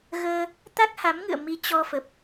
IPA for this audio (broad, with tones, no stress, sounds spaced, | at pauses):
ɣ əː˧ | t̪ a˦˥ k̚ h a˨˦ m ŋ ɨ̰˧˨ ə̯ m i˨˦ t͡ɕ ɔ˧ f ə˨˩ p̚